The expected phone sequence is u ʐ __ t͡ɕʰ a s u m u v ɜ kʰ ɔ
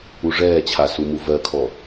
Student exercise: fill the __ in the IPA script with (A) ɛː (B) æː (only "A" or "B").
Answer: A